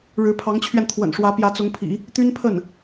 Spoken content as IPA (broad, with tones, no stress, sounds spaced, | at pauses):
ɻ ɻ̩˧˥ pʰ ɑ˧˥ ŋ t͡ɕʰ ɥ ɛ˧ n t̪ʰ w ə̰˨˩ n ʂ w ä˧˥ p j ä˧˥ t͡s ʊ˧˥ ŋ pʰ ḭ˨˩˦ | t̪ y˥ n pʰ ə˥˩ n